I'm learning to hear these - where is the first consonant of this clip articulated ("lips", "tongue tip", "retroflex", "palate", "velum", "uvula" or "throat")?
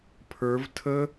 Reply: lips